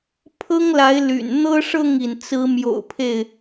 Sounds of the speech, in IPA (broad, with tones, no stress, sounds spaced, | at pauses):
pʰ ɤ˦ ŋ l a˨˦ ɪ̯ l y̰˨˩ n n̪ ɤ˦ ʂ ɤ˥˨ ŋ i˩ n t͡s ɹ̩˨˦ m j o̰˨˩ ʊ̯ pʰ e˥˨ ɪ̯